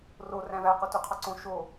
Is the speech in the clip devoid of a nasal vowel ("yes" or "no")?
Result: no